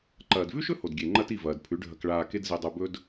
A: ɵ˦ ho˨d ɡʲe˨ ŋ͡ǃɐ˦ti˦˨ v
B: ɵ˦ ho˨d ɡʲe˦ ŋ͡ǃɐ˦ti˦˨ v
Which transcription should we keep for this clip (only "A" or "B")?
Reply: A